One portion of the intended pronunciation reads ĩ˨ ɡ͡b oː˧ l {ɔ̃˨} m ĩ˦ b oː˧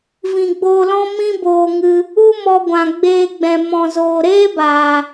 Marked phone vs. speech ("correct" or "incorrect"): incorrect